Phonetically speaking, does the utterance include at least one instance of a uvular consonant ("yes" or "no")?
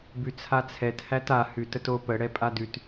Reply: no